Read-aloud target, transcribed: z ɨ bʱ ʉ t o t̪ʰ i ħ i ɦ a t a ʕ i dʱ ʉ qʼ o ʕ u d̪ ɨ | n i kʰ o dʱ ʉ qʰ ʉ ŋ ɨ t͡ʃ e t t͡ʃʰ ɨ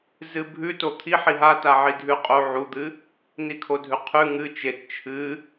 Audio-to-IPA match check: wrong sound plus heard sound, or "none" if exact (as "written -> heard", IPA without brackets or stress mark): none